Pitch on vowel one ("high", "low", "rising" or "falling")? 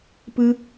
high